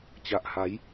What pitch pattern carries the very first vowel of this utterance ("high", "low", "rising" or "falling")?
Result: low